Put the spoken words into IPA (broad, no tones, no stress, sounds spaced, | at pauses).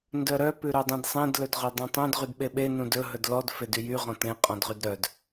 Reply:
n d œ ɾ œ p ʉ ɾ œ dˤ ẽ d sˤ ẽ d l ɵ d ʁ œ dˤ ẽ tˤ œ̃ d ʁ y d ɓ e ɓ e n ũ d ɵ ɦ ɵ d l ɔ d f e d y j y ʁ ɔ̃ t ẽ qʼ ɔ̃ d ʁ y d ɾ œ d